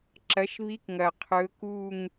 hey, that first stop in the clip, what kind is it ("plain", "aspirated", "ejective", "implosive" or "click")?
click